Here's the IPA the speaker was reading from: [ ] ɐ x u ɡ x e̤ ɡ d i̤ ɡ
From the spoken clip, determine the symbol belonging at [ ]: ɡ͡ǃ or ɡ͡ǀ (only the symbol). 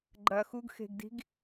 ɡ͡ǃ